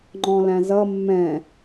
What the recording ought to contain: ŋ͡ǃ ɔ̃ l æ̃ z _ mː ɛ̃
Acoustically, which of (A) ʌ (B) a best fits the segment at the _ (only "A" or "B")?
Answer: A